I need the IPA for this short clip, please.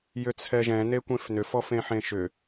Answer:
jʏt͡sʰɛʒɛ̃ nekʷẽfnʏf ɔfẽħẽʃʏ

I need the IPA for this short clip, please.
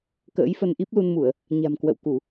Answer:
kə̰ː˧˥jfə˧nʔi˦˥p̚ lu˧nmu˧˩˨ə̯ | ɲa̤˨˩mkwə̰˧˨wku˧˩˨

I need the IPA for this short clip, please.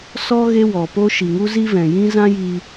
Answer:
sɔ˦ ɣe˦wɔ˨po˦ ʃi˨ŋu˦zi˦vɛ̃˨ jĩ˦zã˦jiː˧

